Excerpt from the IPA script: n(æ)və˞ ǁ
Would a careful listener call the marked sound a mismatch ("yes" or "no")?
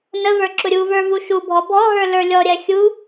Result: yes